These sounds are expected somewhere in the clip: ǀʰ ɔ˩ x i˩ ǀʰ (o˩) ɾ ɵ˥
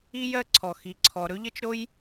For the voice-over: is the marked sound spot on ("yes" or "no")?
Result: no